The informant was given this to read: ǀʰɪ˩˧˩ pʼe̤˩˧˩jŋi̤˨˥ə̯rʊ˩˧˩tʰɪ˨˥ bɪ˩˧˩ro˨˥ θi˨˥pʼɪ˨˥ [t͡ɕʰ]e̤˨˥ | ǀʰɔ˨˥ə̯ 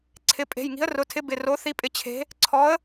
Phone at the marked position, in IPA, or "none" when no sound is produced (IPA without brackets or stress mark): t͡ɕʰ